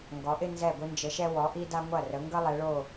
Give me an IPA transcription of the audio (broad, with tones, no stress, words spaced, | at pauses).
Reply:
ŋɡɔ˩˧ʔɪ˥˧ nzɛ˧˩ɡʷɪ˧nd͡ʒə˩˧ʃɛ˧ wɔ˩˧ʔi˧da˧ ŋʷɐ˧˩rə˩˧ŋɡə˧ lˠɛ˩˧ɭo˧˩